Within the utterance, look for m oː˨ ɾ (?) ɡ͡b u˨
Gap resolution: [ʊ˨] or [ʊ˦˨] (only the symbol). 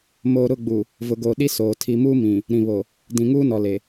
ʊ˦˨